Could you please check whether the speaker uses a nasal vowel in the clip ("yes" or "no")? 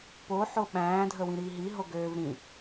yes